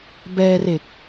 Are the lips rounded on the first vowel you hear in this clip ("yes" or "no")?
no